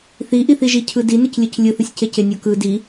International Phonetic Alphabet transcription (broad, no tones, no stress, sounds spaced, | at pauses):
θ i ʔ i θ i ʒ i cʰ ɯ d i n ɯ c lʲ ɯ c lʲ ɯ θ ɯ sʲ c e c e nʲ o k ɯ d i